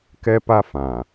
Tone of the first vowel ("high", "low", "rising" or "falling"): high